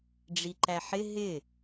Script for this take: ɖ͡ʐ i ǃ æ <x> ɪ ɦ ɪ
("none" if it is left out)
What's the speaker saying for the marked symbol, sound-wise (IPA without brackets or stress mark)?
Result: ħ